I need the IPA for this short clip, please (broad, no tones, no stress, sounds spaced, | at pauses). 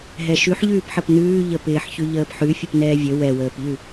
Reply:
ɦ ɛ ʃ ʉ ħ ʎ ʉː p ħ ə p n ʉː ʎ ə p ɪː ħ ç ʉ ʎ əː p ħ ʉ fʲ ə p n ɛː vʲ ə w ɛ w əː p ʎ ʉ